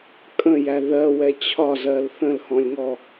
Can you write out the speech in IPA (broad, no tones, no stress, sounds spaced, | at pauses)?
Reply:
kʼ ə̃ j æ ð ɜ w ɛ t͡ɕʰ ɒ z ɜ l θ ə̃ l h ɔ̃ lʲ ŋ ɔ